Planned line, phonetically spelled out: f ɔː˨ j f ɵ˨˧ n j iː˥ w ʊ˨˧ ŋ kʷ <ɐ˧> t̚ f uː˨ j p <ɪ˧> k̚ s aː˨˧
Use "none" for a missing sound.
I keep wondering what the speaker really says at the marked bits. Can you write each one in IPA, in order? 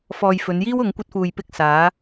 ɐ˧, ɪ˧

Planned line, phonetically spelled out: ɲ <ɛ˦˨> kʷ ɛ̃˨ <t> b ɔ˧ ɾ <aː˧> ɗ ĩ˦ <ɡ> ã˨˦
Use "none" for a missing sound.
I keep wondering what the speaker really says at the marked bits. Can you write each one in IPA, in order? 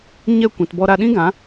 ɛ˦˨, t, a˧, ɡ

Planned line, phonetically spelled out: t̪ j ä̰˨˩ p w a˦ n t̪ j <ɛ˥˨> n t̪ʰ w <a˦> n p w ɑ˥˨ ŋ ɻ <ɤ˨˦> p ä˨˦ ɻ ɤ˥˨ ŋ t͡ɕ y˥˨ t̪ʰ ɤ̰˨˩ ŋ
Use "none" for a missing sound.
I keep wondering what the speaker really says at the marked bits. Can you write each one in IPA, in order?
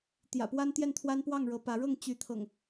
ɛ˥˨, a˦, ɤ˨˦

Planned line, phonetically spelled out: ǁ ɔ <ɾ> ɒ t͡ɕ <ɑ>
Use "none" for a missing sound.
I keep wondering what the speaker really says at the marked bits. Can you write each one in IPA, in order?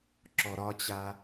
ɾ, a

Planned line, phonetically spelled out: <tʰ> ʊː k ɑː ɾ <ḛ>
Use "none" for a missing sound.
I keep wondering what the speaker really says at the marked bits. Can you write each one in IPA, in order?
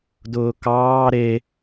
d, e

